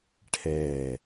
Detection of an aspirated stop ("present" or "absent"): present